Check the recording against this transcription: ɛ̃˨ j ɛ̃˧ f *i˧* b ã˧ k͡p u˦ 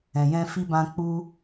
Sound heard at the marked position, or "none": i˧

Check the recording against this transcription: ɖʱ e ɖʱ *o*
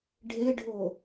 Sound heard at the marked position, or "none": o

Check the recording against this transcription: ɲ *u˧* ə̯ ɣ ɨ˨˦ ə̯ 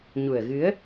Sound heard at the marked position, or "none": u˨˩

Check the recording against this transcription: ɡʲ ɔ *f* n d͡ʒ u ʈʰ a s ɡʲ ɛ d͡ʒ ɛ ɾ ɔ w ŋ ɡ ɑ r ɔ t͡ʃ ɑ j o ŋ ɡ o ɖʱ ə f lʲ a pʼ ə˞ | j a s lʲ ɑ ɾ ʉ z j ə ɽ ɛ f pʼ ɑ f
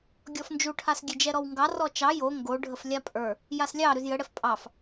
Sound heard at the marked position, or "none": f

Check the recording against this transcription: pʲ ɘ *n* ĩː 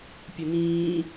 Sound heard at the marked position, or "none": n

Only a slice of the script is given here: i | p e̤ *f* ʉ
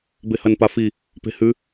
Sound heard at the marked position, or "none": h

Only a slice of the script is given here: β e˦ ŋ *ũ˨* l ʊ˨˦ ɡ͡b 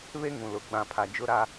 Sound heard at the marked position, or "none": ũ˨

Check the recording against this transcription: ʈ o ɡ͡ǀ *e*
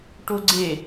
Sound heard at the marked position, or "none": e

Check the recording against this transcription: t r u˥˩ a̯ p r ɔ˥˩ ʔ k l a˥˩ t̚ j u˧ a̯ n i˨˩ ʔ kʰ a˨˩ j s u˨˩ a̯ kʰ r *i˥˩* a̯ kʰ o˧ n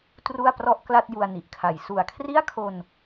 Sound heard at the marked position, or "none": i˥˩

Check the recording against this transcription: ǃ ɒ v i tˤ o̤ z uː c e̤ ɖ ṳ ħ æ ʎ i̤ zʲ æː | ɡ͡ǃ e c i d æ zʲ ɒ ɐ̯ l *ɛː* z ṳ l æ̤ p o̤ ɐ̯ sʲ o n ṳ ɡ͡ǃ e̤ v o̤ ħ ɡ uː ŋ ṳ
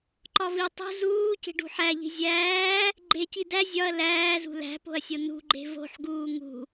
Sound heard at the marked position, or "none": æː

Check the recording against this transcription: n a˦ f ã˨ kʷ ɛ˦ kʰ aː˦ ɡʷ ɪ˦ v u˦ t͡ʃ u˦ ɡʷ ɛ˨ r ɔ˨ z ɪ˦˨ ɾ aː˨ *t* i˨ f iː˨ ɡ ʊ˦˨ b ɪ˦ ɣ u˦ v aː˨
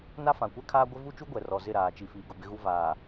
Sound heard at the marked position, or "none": t͡ʃ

